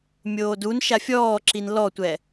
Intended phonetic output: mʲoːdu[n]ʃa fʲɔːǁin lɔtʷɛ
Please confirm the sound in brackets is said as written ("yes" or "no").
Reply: yes